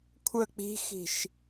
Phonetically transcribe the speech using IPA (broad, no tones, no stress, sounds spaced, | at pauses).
kʷʰ ə k͡p i̤ x i̤ ʃ